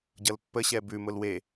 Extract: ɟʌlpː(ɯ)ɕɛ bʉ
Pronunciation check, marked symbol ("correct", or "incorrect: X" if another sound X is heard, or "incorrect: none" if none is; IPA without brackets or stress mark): incorrect: ə